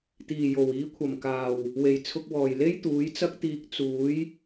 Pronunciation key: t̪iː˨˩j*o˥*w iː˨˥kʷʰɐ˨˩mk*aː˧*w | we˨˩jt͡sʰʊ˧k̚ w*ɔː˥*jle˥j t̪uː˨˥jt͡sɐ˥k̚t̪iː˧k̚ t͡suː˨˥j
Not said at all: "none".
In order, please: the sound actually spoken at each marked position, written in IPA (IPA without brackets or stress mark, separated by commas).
o˨˩, aː˨˩, ɔː˨˩